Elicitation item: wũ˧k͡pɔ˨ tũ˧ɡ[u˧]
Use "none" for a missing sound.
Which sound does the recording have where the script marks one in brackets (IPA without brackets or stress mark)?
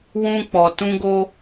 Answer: o˧